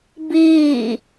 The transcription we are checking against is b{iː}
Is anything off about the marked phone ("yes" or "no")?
no